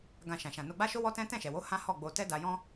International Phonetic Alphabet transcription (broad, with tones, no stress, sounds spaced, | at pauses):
ɡ ã˧ ʃ ã˨ ʃ ã˨ n o˧ ɡ͡b a˦ ʃ o˦ w ɔ˦ t ɛ̃˦ t ɛ̃˦˨ ʃ ɛ˨ w o˨˦ h ã˦ h ɔ˦˨ ɡ͡b o˧ t ɛ˦ d a˧ j ɔ̃˦